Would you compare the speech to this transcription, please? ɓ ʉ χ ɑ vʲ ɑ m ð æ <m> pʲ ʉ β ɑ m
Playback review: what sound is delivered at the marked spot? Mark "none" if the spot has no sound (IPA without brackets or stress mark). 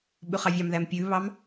m